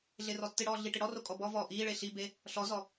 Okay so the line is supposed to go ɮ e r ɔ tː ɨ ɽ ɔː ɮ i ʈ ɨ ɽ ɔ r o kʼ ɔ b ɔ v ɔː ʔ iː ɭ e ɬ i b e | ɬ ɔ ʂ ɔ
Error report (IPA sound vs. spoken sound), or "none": ʂ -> z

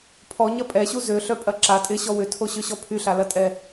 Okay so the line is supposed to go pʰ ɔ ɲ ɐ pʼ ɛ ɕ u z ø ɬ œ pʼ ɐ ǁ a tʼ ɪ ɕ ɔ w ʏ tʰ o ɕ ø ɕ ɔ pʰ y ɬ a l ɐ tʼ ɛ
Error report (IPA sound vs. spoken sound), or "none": none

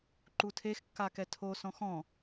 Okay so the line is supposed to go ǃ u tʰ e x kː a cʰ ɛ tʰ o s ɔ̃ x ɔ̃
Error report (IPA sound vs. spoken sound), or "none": cʰ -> k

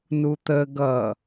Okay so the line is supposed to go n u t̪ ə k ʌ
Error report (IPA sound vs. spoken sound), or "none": k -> ɡ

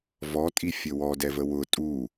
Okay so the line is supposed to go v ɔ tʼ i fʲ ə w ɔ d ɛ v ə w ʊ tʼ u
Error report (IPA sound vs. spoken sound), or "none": none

